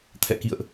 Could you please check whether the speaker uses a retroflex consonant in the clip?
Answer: no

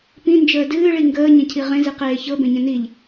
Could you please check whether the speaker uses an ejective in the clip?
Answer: no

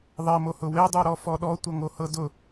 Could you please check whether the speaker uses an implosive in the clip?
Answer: yes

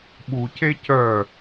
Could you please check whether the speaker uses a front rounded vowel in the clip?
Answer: yes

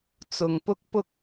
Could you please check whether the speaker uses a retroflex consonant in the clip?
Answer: no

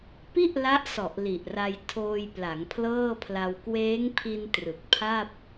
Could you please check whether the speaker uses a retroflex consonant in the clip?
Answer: no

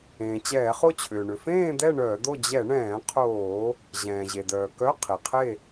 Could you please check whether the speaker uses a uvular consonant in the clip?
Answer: yes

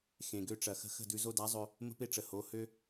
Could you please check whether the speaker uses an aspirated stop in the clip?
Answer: no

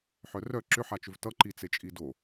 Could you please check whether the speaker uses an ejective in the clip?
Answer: yes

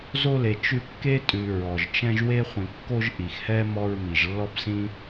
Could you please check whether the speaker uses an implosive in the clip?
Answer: no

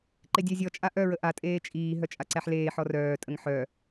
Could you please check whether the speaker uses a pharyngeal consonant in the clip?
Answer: yes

